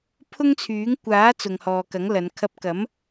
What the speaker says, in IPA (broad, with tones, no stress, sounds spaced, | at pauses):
pʰ ʊ˥ ŋ t͡sʰ yː˨˥ ŋ kʷ aː˨˥ t͡s ʊ˨ ŋ h ɔː˨ k ɐ˨˥ ŋ l ɐ˨˧ n kʰ ɐ˧ p̚ k ɐ˨˥ m